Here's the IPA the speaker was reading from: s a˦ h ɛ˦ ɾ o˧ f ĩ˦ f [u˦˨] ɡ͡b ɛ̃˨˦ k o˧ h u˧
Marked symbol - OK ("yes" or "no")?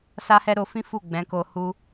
yes